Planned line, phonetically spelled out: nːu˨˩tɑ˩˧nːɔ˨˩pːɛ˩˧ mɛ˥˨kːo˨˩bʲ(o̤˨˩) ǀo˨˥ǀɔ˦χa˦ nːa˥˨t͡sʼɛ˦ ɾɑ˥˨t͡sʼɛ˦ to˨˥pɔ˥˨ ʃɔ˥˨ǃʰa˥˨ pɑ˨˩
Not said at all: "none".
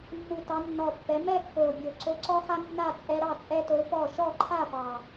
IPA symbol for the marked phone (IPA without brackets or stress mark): o˨˩